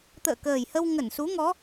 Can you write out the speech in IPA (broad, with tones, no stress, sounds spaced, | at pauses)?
t̪ ə̰ː˧˨ k əː˨˩ j h ə˧ w ŋ ə˧˩ n s u˨˦ ŋ ɔ˨˦